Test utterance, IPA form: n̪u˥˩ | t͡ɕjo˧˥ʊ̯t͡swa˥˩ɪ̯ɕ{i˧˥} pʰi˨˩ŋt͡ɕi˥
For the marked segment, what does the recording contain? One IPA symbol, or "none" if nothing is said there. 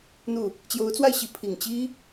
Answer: i˧˥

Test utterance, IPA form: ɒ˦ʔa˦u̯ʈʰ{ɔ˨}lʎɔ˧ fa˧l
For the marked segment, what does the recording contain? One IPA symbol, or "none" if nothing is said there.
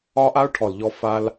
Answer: ɔ˨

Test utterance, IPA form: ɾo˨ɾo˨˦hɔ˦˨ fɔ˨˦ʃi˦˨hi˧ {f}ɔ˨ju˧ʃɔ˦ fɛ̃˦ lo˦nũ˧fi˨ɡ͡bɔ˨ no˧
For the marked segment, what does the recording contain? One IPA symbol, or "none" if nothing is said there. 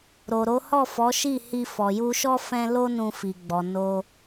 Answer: f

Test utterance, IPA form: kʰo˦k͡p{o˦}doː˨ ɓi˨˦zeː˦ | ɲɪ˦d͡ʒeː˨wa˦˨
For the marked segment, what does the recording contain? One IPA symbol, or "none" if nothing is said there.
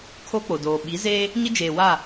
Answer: o˨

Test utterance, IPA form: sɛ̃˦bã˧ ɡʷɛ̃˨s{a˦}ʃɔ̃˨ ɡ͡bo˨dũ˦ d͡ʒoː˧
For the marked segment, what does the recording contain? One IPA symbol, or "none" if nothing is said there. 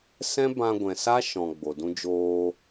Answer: a˦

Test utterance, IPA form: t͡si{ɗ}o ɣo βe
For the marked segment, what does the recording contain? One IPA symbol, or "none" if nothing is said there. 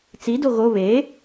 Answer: d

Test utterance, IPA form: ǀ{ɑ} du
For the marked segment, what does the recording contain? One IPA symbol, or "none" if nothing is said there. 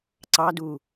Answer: ɑ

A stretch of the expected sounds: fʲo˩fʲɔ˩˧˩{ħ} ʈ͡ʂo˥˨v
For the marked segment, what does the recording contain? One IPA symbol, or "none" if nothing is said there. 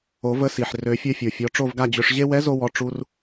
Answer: none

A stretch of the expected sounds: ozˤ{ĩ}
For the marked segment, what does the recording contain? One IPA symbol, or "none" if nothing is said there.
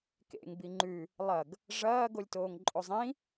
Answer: ĩ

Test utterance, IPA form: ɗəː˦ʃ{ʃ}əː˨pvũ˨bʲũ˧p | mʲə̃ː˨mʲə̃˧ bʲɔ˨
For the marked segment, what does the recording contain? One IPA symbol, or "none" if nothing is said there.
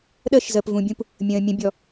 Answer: z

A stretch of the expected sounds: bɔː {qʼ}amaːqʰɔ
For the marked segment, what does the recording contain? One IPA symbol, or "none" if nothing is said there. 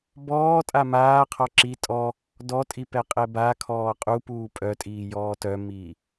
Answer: tʼ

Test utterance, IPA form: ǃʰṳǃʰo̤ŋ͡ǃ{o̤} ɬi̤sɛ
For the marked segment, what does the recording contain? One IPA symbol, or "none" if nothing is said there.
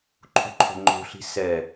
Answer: o̤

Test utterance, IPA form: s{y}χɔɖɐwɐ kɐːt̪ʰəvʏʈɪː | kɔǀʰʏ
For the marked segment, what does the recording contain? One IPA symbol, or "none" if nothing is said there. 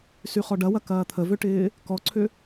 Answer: y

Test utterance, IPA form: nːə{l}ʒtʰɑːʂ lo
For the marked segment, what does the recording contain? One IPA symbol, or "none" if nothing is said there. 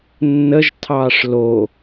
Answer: none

